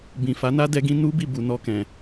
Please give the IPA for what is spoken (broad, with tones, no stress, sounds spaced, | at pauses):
b ĩ˨ f a˨˦ n a˦ d ɛ˦ ɡ ĩ˦ n u˦ b i˦˨ b u˨ n ɔ˧ k ɛ̃˨